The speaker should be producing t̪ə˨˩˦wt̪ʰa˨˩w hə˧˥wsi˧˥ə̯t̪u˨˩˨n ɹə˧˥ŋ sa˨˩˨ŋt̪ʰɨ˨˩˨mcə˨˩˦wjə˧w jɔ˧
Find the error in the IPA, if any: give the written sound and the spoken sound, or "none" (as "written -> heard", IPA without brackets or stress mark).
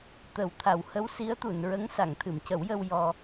none